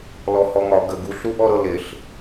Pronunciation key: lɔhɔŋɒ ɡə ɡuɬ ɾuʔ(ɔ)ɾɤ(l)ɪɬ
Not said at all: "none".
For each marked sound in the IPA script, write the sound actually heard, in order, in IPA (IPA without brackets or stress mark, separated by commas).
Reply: ɔ, l